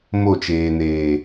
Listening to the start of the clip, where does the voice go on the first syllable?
falling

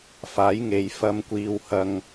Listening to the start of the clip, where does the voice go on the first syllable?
rising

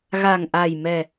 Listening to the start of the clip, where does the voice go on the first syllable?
low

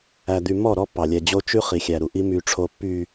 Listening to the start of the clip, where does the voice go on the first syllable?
low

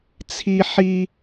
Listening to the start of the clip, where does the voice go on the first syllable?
high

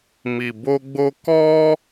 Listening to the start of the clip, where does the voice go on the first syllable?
low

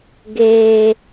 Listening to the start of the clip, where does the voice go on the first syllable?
high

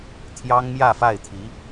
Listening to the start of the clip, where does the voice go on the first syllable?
high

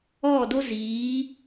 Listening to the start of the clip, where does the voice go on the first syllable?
falling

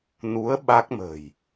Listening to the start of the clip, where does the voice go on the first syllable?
rising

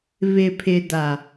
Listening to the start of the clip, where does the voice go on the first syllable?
low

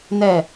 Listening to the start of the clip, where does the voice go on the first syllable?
falling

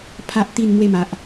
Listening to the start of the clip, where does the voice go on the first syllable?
high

